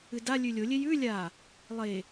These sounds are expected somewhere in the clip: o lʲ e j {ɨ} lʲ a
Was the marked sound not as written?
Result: yes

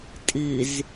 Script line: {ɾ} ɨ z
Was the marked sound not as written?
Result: yes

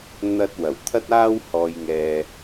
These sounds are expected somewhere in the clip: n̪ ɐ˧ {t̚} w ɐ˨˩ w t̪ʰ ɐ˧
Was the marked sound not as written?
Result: no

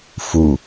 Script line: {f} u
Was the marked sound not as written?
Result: no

